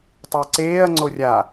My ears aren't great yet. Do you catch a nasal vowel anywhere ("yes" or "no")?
no